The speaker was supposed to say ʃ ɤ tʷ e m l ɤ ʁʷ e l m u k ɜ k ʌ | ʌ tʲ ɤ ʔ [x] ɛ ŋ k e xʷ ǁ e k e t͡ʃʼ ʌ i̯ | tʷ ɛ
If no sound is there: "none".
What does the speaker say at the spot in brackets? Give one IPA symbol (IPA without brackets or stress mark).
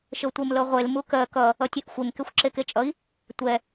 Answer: xʷ